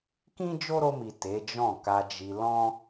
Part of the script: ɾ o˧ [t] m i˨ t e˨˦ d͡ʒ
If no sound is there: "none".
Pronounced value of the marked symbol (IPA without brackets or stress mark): none